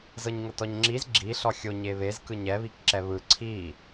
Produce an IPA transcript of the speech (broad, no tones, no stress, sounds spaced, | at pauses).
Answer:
z ɤ ɲ ŋ ɤ t ɔ ɲ ŋ͡ǁ i z ɡ͡ǁ i ɬ ɔ xʲ o ɲ e β e z k ɯ ɲ ɛ β i k ǁ ɛ β ɯ ǀʰ i